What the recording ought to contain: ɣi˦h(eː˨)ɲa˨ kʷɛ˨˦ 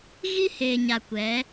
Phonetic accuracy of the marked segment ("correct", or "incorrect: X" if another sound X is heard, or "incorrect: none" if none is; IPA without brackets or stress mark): correct